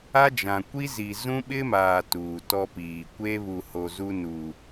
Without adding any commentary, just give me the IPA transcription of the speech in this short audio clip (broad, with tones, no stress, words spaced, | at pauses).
a˦d͡ʒã˨ kʷi˦zi˨ zũ˦ɓɪ˦maː˨ tuː˨tɔ˦piː˨ kʷe˦βu˨ho˨ zu˦nu˨